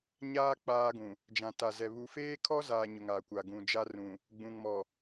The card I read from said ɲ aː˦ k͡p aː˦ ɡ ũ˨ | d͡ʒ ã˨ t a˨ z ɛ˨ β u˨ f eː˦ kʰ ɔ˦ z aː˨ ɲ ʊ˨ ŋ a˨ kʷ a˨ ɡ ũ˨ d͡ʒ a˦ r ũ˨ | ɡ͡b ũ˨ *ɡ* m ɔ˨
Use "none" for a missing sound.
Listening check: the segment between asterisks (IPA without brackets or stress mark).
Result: ŋ